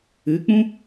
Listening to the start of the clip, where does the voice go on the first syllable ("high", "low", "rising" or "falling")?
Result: rising